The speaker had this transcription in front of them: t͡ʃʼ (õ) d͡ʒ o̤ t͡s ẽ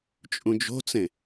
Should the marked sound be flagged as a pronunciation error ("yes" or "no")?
yes